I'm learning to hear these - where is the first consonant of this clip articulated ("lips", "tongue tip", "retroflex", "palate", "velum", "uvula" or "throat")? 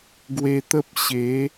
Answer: velum